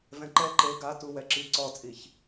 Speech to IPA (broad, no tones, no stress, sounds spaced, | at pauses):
v ɛ̃ ǃ ɛ ǃ e ɡ a t u w ɛ ǁ i ǀ ɔ t͡sʼ i ç